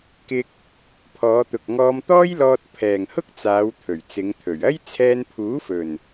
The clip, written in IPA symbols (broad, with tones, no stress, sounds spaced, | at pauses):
k ɪ˧ k̚ | pʰ ɔː˨˧ t̪ ʊ˨ k̚ ŋ ɔː˧ m t̪ ɔː˥ j l ɔː˧ t̚ pʰ ɛː˨ ŋ h ʊ˥ k̚ t͡s aː˨˧ w t̪ʰ ɵ˨˩ ɥ t͡s ɪ˨˧ ŋ t̪ʰ ɵ˨˩ ɥ ɐ˥ j t͡sʰ ɛː˧ n pʰ uː˨˥ f ɵ˨˩ n